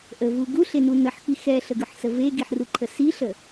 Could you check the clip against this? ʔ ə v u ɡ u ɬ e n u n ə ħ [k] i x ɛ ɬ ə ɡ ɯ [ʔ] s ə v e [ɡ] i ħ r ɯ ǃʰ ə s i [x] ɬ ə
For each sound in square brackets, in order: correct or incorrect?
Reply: correct, incorrect: ħ, correct, incorrect: none

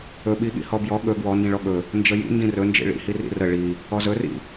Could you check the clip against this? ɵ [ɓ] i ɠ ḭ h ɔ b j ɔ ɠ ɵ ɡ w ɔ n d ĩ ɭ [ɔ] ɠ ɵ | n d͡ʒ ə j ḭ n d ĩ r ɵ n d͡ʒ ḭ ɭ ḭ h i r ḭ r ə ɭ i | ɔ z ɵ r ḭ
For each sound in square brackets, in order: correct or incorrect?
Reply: correct, correct

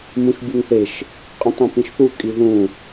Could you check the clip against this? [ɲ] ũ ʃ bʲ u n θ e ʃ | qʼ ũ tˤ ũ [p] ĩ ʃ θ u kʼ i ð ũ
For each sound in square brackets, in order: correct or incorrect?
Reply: incorrect: m, correct

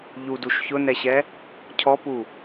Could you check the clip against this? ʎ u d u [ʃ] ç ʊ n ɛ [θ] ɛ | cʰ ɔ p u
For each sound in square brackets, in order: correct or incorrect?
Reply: correct, incorrect: ɕ

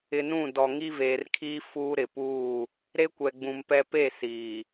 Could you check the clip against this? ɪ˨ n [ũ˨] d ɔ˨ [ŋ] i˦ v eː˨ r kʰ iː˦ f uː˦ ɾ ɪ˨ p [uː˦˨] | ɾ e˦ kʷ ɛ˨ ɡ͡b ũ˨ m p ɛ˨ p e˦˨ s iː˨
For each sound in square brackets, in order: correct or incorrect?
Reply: incorrect: ũ˦˨, correct, correct

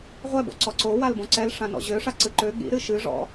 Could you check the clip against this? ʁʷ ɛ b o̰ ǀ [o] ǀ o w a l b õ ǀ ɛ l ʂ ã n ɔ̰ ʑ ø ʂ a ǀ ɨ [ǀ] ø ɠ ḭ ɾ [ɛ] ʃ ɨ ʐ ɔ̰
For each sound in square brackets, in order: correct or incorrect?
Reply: incorrect: ɔ, incorrect: ǃ, incorrect: ɨ

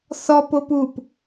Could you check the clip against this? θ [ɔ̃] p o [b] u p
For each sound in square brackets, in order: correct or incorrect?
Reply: incorrect: ɔ, incorrect: p

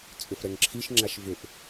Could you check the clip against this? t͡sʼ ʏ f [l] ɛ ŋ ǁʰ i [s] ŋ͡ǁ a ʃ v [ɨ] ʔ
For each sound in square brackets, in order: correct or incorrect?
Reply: incorrect: ɾ, incorrect: ʃ, incorrect: ʏ

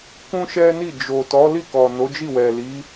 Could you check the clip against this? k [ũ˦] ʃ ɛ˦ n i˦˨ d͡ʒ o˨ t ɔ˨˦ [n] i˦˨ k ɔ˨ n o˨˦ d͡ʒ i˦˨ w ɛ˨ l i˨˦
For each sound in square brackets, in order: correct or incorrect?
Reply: correct, incorrect: l

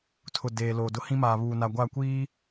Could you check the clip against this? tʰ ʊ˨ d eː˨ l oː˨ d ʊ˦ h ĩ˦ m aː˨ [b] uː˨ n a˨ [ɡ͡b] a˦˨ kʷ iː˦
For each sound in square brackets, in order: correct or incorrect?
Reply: incorrect: β, incorrect: ɡʷ

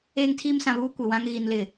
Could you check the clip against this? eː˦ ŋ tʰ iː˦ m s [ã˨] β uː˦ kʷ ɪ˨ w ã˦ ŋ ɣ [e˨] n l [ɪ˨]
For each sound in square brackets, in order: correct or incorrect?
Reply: correct, incorrect: i˨, correct

